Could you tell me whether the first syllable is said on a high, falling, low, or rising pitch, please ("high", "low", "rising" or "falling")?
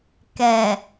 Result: low